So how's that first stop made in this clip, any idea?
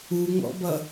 plain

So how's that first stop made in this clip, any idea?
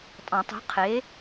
ejective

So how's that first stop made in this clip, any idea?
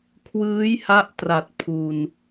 aspirated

